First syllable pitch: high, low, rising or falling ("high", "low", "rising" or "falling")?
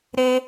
high